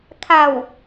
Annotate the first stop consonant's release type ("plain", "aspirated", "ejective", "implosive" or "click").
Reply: aspirated